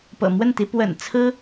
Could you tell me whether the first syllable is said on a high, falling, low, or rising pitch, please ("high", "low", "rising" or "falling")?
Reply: low